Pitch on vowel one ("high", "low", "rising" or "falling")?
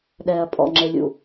low